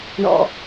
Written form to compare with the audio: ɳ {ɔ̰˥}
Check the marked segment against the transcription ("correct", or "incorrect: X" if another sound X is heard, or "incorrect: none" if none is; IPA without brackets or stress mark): incorrect: ɔ̰˧